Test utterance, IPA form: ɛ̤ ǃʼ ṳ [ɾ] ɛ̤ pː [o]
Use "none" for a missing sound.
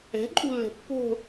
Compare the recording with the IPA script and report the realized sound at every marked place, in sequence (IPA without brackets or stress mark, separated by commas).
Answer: lː, o̤